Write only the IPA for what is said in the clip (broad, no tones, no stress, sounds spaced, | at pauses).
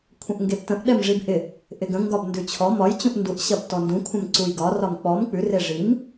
kʷʰ ə̃ ʔ ŋ ɡ e b t ə̃ ʔ ɗ ɛ m ʐ i b ʔ ɪ | ʔ ɪ ɡ ə̃ ŋ ɡ ɒ b n d ʉ t͡ɕʰ ɔ m ɒ j t͡ɕ ũ ʔ n d u ʔ ɕ ɐ b t ɔ n d ũ kʷʰ ə̃ m ǀ u j ɡ ɒ r ɒ m k͡p ɔ m k͡p ʉ r e ʐ i m